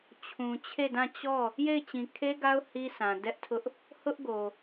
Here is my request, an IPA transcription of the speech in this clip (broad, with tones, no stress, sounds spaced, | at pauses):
t͡ɕʰ ũ˨ t͡ɕʰ e˦˨ d ã˦˨ t͡ɕ ɔ˦˨ | j e˦˨ ɪ̯ t͡ɕ ĩ˨ kʰ e˦ ɡ a˦ ʊ̯ h i˦ s ã˨ d ɛ˦ ʔ tʰ ʊ˦ ʔ | h ʊ˦ ʔ ɡ o˨